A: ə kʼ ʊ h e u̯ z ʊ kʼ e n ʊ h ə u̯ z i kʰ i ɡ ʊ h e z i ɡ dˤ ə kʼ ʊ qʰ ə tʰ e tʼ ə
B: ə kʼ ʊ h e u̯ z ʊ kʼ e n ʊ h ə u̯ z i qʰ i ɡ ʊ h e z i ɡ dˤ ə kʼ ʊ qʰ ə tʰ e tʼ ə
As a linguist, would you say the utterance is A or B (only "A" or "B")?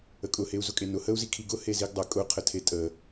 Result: A